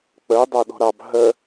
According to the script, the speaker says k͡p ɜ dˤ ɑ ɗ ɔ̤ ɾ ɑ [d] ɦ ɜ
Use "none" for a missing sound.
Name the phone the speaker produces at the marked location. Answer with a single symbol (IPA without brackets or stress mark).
b